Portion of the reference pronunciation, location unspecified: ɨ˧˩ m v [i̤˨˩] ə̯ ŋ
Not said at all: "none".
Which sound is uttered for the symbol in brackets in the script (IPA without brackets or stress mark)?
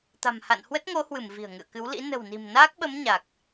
i̤˨˩